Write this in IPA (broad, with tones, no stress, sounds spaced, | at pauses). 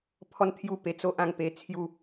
pʰ ɔ˦ n t̪ʰ j u˥˧ p e˧ t͡s o˦ ʔ ã˥˧ ŋ p e˧ t͡sʰ j u˥˧